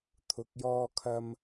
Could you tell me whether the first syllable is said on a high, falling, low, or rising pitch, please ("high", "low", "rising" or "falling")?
low